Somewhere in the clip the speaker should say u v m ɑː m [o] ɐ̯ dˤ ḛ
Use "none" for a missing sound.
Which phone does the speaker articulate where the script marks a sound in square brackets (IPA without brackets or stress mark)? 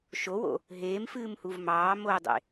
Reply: o